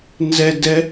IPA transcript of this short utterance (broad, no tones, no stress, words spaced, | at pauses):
nzɛdɛ